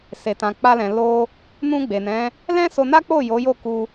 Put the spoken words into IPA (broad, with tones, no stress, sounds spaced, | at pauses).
s e˨ t ã˨ k͡p a˧ l ɛ̃˨ l o˧ | n ũ˧ ɡ͡b e˨ n ɛ̃˨˦ | l ɛ̃˦ s o˧ n a˦ k͡p o˦˨ j o˨˦ j o˦˨ k u˧